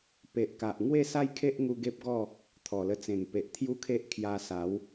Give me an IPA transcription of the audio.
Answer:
p e˨ ʔ k a˨ ʔ ŋ w e˥˧ s a˦ j kʰ e˦ ʔ ŋ u˧ ɡ e˦ p̚ ɡ ɔ˥˧ | t̪ʰ ɔ˨˩ l ə˧ t͡s ẽ˨˩ ŋ p e˨ ʔ t̪ʰ j u˦ kʰ e˦ ʔ kʰ j a˧ s a˨˦ w

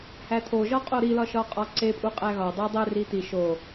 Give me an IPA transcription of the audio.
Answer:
h æ t̪ʰ o ʒ ɒ qʼ o ɾ i l ɒ ʃ ɒ qʼ ɒ ǀ e pʼ u qʼ æ ɣ ɒ dˤ o dˤ e r i t̪ i ʃ o

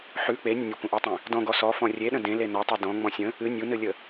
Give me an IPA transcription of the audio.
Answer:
ħ ʉ k͡p e nʲ ə̃ nʲ ə kʷ ə̃ ʔ ɔ tˤ ẽ | d ɔ̃ ɡ ɔ s ɔ f ɔ̃ rʲ e ɗ ə̃ d ẽ l e n ɔ tˤ ɨ d ɔ̃ ŋ͡m ɔ̃ sʲ ə̃ | ɨ nʲ u n ɨ lʲ ə

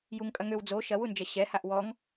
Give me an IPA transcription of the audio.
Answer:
j u ŋ kʼ ɐ ŋ ø w d͡z o ʃ ɐ w u n d͡ʒ ɐ ɕ ɛ h a ʔ w ɔ ŋ

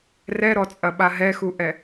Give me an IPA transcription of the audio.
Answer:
r ɛ ɾ ɔ t͡sʼ ɐ ɓ a ɦ ɛ x u ʔ ɛ

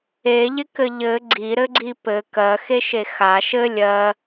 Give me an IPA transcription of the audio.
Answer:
e ʎ ɪ k ɘ ʎ ɘ ɡ͡ǀ i ɾ ɘ ɡ͡ǀ i p ɘ k ɜ x e ʃ e x a ʃ ɘ lʲ ɜ

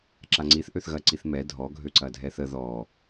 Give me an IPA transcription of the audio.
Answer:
ǁ a ŋ͡ǀ i θ ʔ ø θ ɣ ɐ ǀ i θ m ɛ dʱ ɔ ɡʱ ø ǀ ɐ dʱ ɛ θ ə ð ɔ

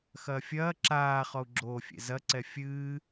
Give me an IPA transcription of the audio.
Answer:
x ɐː fʲ ɐː ǁ aː χ ɔ u̯ ɡ͡ǁ oː fʲ ḛ z ɐ ǀ ɛ fʲ ɨː

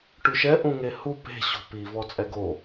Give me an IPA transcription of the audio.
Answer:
ʈ ʉ ʃ ɛ ʔ ũ ŋ e h u p e̤ ɕ o̤ p i v ɔ t͡sʼ ɛ ɡ o

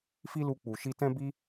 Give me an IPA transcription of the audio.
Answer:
f i˦ l u˧ k͡p u˨ ʃ i˧ t ɛ̃˦ b i˦

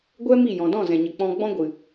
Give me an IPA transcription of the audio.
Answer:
ɡʷ ɛ˦ m i˦˨ j ɔ̃˨ d ɔ̃˦˨ z ɛ̃˨ ɲ ə˨ k͡p ɔ̃˧ ɡ͡b ɔ̃˧ ɡʷ ɨ˨

